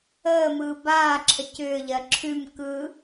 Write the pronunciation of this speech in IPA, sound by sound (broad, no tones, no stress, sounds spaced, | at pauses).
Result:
əː m ɯː b aː ǁʰ ə c ʏː ʎ ɜ ǁʰ ʉ m k ɯ